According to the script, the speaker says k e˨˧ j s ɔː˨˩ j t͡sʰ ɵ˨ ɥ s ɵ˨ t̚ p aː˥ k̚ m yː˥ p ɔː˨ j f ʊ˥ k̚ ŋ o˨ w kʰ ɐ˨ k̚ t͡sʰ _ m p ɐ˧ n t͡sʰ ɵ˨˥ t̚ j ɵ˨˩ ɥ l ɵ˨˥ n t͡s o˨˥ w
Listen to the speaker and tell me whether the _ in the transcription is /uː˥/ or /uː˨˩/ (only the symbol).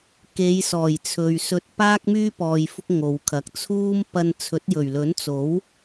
uː˥